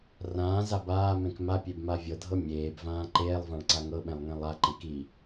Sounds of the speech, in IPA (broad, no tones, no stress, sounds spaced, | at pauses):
r ãː z a b aː m ẽ k m a pʲ e b m a vʲ ɤ dʱ ɤ mʲ eː b v ãː ǃ eː lˠ v ã ɭ ǀ a ŋ ɤ ɓ ẽ lˠ ŋ ẽ lˠ a ǃ ẽ k i